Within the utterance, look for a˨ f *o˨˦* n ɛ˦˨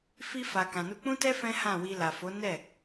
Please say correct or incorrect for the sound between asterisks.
correct